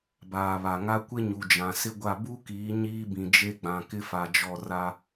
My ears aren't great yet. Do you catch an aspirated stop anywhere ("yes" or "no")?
no